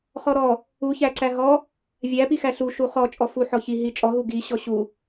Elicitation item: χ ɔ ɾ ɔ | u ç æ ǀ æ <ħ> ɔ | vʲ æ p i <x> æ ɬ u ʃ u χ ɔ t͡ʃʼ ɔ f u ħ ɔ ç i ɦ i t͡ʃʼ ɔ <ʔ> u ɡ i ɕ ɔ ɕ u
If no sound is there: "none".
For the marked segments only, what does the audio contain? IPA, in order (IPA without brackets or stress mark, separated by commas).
ɦ, x, ɦ